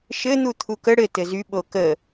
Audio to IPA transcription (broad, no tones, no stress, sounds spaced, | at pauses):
ʃ ɘ n̪ u t̪ʰ u k ə ɽ ɘ t ɘ z y ɓ o k ə